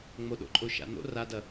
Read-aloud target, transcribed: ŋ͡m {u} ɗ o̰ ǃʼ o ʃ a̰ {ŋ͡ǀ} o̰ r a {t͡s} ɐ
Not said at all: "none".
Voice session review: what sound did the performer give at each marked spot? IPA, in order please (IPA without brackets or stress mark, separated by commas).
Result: o, n̪, d